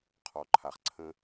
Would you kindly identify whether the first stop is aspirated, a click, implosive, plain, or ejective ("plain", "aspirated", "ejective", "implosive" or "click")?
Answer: aspirated